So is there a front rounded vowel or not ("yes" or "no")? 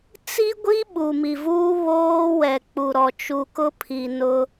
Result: no